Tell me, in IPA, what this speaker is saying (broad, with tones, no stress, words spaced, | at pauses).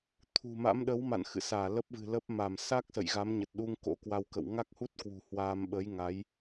t̪ʰṳ˨˩ma̰˧˥m ɗə˨˦wma̰˧˨nxɨ̰˧˨saː˧˩ lə˦˥p̚vɨ̤˨˩lə˦˥p̚ ma˧˩msa˦˥k̚ sə̰˧˨jɣa˨˦mɲə˨˩t̚ɗu˧ŋ ko̰˧˥kwa˧wkə̰˧˨w ŋa˦˥k̚hu˦˥t̚kwṳ˨˩ hwaː˧m ɓə˨˦jŋa˨˦j